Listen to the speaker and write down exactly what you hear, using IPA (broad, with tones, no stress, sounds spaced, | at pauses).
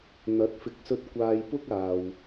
n̪ ɐ˨˥ t̚ f ɪ˨˥ k̚ s ɵ˧ t̚ kʷ aː˧ j p ʊ˥ k̚ aː˨ w